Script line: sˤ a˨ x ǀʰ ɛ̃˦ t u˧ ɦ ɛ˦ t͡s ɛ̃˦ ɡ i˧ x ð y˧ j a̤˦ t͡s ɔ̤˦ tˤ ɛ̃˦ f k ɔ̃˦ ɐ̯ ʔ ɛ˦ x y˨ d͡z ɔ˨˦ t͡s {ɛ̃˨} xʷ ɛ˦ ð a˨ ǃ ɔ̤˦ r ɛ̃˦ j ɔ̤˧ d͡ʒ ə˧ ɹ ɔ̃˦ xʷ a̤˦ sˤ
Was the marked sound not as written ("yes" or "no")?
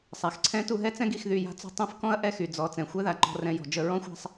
no